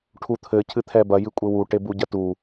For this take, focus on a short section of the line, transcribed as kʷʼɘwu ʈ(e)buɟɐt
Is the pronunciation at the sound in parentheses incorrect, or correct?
correct